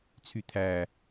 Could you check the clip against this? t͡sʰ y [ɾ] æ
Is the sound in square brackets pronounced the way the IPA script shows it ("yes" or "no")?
no